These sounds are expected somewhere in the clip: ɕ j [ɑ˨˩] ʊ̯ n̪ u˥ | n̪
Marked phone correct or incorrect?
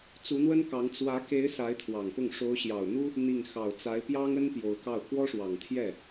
correct